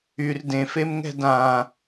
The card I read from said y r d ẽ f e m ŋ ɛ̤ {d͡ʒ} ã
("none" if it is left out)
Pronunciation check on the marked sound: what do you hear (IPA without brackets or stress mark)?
d